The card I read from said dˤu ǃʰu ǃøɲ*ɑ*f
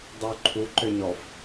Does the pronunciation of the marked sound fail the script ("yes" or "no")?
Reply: yes